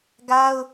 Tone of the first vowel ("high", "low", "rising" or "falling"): high